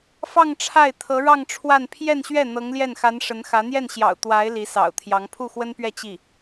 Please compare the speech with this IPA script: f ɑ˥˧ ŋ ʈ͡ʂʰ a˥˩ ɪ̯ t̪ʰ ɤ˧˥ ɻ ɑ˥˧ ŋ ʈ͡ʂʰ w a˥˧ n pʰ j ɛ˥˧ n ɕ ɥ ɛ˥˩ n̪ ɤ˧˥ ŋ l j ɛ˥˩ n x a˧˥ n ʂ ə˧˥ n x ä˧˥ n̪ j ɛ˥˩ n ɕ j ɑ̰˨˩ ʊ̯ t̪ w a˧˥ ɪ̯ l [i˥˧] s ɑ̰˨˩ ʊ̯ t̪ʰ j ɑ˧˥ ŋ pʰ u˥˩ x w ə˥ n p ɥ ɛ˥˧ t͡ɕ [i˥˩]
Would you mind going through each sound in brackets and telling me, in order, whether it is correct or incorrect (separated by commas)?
incorrect, correct